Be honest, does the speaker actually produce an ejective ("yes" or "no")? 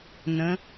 no